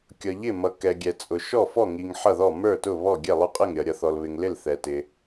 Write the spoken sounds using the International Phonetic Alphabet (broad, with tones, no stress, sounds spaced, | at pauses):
kʲ ʌ˨ ʎ ɪ˥˩ m ʌ˨ k ɛ˨ ɡʲ ɛ˨ t͡sʼ ʊ˨ ʃ ɔ˥˩ f ɔ˥˩ ŋ i˨ ŋ ħ ʌ˥˩ ð ɔ˥˩ m ə˞˥˩ t ʊ˥˩ β ɔ˥˩ ɡʲ ɛ˥˩ lˠ ʊ˥˩ qʼ ɪ˥˩ ŋ ɾʲ ʌ˨ ɾʲ ʌ˨ θ ɔ˨ l β ɪ˨ ŋ l ɪ˥˩ l θ ɛ˨ t ɪ˨